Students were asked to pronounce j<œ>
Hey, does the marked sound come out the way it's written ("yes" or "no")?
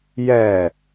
no